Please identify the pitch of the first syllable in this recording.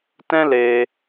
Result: high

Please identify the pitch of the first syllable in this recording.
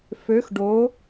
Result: rising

